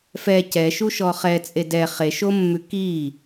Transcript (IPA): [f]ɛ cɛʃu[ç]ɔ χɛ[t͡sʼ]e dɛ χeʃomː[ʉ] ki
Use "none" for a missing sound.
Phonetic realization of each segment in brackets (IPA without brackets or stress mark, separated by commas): f, ʃ, t͡sʼ, ʉ